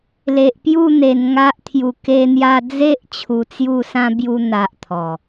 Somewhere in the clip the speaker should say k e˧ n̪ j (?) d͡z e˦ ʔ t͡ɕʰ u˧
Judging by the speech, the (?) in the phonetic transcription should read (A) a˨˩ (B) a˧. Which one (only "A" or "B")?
B